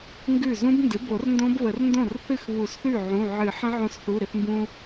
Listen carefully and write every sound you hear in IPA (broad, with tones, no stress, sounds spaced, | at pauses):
ŋ ɡ ʉ˥˩ z ũ˦˥ b n d ɨ˩˥ b o˨˩˦ r n d õ˦˥ b β ə˨˩˦ r n d õ˥˩ r θ ɨ˥˩ x β u˨˩˦ s θ ʉ˥˩ ʕ ũ˩˧˩ ʕ ɨ˨˩˦ ħ ə̃˦˥ ʕ õ˧ s θ u˩˧˩ ɾ ɪ˧ θ m b ũ˧